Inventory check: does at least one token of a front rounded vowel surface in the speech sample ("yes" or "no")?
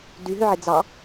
yes